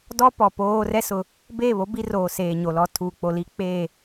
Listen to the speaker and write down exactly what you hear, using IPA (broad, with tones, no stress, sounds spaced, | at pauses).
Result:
d ɔ˦ p ɔ˨ p oː˦ r ɛ˦ s ʊ˨ | b eː˦˨ β o˦ b i˦ r oː˨ s eː˨ ɲ o˨ l ɔ˦ tʰ uː˨ k͡p o˨ l i˦ k͡p eː˦˨